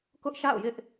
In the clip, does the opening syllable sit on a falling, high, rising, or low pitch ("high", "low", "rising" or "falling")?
high